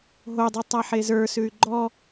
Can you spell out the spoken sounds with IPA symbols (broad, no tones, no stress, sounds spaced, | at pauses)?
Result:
ɦ o dˤ i tˤ a ħ e z ə˞ s ʉ y̯ ɡ͡ǃ ɔ